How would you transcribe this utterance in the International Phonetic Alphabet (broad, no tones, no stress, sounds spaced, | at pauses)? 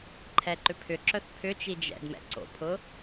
ǃʰ ɛ ǃ ʏ pʰ ʏ ǁ œ θ pʰ ʏ t͡ʃ i d͡ʒ ɛ̰ d m ɛ̰ ǀ o̰ pʰ ʊ